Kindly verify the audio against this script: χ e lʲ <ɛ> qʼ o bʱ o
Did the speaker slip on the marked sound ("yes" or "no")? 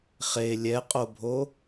no